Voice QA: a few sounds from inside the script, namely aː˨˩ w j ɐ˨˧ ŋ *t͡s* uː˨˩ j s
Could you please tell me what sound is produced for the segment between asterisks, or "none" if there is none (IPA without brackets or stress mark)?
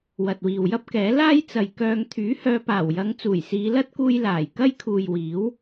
t͡s